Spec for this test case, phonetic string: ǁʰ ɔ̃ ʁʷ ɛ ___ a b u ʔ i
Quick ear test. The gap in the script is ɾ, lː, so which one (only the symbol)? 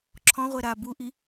ɾ